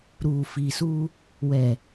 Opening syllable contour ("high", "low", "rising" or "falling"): low